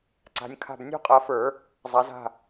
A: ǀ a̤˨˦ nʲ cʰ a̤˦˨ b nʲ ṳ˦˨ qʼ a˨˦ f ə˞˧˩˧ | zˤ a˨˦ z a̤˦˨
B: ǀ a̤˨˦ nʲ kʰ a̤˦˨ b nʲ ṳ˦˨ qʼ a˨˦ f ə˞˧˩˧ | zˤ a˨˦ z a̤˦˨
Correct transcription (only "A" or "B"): B